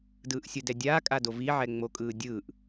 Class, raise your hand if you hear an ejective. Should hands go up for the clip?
yes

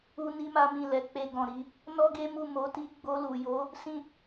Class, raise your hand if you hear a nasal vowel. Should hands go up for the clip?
yes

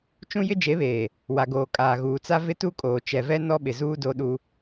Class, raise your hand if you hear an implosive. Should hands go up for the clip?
yes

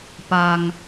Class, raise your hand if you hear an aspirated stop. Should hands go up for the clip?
no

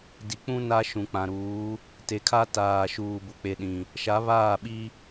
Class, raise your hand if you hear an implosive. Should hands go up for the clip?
yes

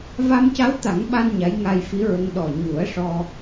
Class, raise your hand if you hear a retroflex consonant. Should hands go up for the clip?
yes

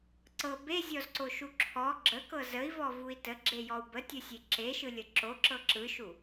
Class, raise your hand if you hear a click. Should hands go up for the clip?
yes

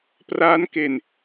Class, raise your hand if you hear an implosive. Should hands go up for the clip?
no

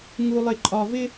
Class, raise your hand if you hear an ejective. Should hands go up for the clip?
yes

